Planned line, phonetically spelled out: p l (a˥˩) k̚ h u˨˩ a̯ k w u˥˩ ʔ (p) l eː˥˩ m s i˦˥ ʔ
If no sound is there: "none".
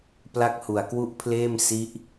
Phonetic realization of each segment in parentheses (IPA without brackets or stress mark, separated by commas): a˥˩, pʰ